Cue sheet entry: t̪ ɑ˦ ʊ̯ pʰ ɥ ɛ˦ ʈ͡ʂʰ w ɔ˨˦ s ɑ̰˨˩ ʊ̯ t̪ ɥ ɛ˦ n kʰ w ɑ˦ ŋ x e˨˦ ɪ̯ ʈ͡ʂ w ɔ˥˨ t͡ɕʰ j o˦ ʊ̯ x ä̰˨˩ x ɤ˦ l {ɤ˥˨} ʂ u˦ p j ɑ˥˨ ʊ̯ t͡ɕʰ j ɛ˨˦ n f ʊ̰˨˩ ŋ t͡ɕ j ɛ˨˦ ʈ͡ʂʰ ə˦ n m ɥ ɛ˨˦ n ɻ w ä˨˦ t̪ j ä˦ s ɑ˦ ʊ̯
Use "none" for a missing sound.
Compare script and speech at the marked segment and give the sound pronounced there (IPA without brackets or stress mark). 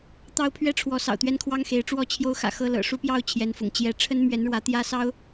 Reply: ɤ̰˨˩